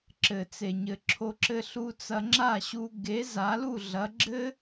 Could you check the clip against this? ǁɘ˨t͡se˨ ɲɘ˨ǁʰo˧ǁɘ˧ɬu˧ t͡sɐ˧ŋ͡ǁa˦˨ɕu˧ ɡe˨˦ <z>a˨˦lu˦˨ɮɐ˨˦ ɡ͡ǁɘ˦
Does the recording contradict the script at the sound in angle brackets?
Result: no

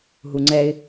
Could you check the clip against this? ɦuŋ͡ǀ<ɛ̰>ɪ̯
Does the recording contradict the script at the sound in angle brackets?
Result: yes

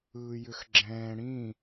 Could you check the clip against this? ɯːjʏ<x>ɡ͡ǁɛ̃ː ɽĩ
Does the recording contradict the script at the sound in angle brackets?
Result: no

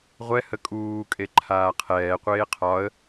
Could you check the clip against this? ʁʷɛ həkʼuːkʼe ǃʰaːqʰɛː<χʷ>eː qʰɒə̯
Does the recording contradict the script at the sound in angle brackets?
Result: yes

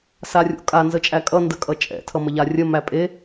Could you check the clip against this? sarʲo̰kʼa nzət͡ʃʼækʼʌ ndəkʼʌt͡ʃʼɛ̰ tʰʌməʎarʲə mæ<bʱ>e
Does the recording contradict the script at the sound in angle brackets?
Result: yes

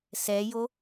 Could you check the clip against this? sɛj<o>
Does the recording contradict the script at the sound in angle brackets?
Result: no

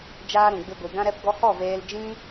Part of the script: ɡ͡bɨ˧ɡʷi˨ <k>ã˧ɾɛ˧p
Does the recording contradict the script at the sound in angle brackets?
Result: yes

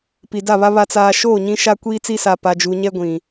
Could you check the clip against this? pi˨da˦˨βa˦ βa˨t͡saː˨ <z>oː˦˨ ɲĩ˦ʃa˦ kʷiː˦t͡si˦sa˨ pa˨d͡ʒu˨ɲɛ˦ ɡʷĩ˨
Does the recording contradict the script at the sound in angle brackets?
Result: yes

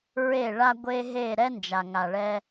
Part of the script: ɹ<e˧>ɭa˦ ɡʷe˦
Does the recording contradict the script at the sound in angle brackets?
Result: yes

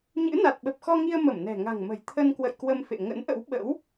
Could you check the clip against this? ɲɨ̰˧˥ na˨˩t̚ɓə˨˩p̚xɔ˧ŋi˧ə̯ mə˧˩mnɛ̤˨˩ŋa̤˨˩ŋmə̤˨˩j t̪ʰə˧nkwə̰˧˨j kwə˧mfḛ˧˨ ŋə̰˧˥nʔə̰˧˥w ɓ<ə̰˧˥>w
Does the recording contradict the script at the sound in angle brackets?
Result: no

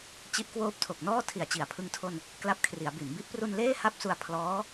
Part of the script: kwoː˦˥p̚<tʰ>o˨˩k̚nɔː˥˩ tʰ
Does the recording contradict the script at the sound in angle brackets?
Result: no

